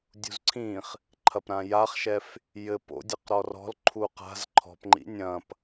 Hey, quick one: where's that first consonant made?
tongue tip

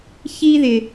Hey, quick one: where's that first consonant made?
palate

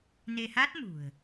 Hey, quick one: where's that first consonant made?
tongue tip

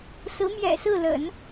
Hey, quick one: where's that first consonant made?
tongue tip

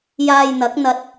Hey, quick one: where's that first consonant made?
palate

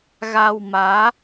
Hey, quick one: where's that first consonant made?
velum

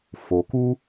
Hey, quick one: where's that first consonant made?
lips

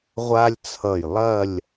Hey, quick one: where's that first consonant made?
uvula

